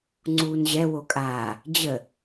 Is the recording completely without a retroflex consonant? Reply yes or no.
yes